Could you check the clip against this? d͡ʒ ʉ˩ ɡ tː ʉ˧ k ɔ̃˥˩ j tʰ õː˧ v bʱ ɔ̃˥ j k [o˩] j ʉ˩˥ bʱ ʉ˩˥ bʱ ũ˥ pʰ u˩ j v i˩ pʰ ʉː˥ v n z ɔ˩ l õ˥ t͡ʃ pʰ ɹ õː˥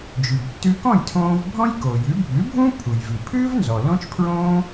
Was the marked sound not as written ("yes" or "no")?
no